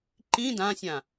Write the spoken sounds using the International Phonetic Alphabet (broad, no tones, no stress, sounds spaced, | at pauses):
ǃ ĩ d ã sʲ ã